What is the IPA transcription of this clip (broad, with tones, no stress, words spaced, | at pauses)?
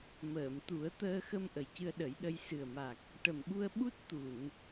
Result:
məː˨˩˨m t̪u˨˩˦ə̯ t̪əː˧xə˧m ʔə˨˩jcɨ˧ə̯ɗə˨˩˦jɗə˧j sɨ˨˩ə̯ma˨˩k̚ | ʈə˨˩mɓu˧ə̯ ɓu˦˥t̚ t̪u˨˩˨n